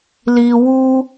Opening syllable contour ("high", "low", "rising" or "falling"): low